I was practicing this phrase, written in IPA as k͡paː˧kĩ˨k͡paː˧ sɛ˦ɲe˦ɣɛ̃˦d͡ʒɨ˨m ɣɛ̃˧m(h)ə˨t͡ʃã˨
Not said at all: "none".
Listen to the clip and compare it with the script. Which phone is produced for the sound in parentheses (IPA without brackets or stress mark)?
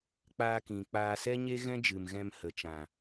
h